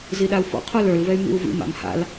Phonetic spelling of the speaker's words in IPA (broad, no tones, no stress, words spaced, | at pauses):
ziɗau̯fɔ̰ qʰolə˞lvɛy̯ mḭu̯vḭ ma̰mha̰l